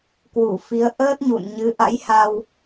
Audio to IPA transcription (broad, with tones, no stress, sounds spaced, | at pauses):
k w u˧˩ f i˨˦ ə̯ ʔ əː˦˥ t̚ ɲ ṵ˧˨ n ɲ ɨ˨˦ ʔ a̰˧˥ j h a˧ w